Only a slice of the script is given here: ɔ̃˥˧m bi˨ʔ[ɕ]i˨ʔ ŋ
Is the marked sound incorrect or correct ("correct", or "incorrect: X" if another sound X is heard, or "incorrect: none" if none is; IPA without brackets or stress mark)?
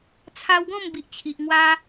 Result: incorrect: t͡ɕʰ